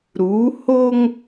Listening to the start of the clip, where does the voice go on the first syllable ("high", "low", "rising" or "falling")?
rising